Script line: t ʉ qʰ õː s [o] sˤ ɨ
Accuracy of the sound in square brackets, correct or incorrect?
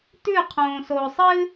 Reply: correct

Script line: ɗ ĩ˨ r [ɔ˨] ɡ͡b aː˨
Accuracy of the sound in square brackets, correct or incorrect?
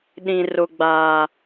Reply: incorrect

